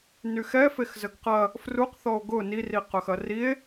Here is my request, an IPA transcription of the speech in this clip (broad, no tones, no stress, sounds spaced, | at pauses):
n y x ɛ f e x z ə ɡ q ɐ | f r u q θ ɔ o̯ ɡ ʊ n i r i q œ x ɐ r i e̯